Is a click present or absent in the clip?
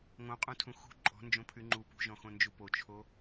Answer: present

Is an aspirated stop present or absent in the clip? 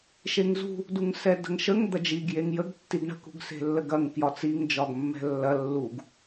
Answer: absent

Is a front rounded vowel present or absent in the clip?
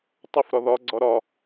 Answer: present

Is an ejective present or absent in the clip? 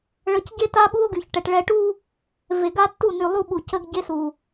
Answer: absent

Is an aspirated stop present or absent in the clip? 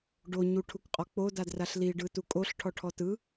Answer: present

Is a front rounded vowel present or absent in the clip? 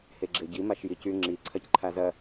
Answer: present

